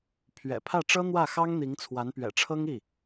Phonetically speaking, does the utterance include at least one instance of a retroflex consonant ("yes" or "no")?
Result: yes